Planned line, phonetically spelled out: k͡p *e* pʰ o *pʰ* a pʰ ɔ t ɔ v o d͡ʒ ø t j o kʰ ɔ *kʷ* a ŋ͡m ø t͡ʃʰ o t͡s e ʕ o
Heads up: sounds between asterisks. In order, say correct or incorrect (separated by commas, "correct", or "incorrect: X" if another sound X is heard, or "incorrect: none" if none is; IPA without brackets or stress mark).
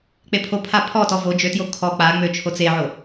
correct, correct, incorrect: k͡p